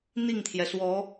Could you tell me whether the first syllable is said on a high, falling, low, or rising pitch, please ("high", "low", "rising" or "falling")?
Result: falling